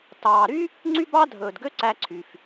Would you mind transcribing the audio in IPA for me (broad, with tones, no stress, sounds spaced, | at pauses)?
t ɑː˨ ɾ y˥ | ŋ͡ǀ y˥ b ɑ˥ dʱ ɵː˨ d ɡ ø˥ ǀ æ˦ ǀʰ y˨ f